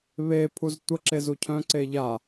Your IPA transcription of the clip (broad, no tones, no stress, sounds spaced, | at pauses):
β e pʰ u z tʷ ə ǁ e z u cʰ œ̃ ǀ e ʎ a